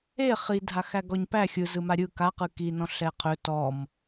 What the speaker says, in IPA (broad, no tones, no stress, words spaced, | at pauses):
e χidʱaxæɡɔɲ pæ xʲɯzɯma ɾʲɯ kaqɯ kinɔ̃ ɬɛqʰɵ tɔm